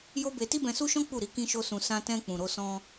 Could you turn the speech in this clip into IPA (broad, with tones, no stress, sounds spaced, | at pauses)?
j o˦ b e˧ t i˦ b ɛ̃˧ s u˦ ʃ ɔ̃˦ k͡p u˦˨ ɾ i˨˦ k ĩ˦ ʃ o˦ s ũ˧ s ã˧ t ɛ̃˧ k͡p ũ˨ ɾ o˧ s ɔ̃˧